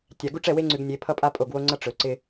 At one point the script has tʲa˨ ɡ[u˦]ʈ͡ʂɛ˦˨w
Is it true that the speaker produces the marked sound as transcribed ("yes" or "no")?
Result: yes